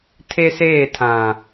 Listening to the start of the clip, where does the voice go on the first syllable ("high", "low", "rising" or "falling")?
high